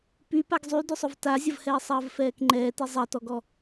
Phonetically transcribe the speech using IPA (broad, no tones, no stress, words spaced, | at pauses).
pypaɡ zˤydʏsˤʊv tazʲɐvhɛː sˤɐːvfɛːkŋ͡ǃɛːti zˤɐtɔɡɔ